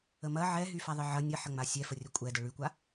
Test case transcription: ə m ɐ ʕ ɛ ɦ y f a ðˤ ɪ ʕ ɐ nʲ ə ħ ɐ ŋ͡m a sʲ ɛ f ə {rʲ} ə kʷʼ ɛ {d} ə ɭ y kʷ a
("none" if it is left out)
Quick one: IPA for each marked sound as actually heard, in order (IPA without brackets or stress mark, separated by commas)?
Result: rʲ, d